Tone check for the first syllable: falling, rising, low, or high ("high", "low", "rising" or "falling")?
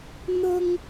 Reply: high